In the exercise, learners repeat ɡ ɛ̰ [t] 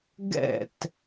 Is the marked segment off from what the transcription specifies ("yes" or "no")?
no